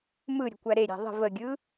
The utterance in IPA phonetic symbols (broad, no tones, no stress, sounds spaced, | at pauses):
m ɯ ɾʲ ə̤ kʷ æ ɾ e ɾʲ æ̤ ðˤ ə̤ v ə ɡʲ ɯ